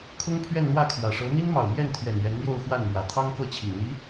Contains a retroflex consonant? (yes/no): yes